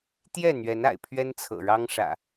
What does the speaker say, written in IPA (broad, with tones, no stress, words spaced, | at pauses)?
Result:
t̪jɛ˥˨n̪ɥɛ˨˦na̰˨˩ɪ̯ pʰɥɛ˦nt͡sʰɤ̰˨˩ɻɑ˦ŋʂä̰˨˩